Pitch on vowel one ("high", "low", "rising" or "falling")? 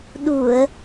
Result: low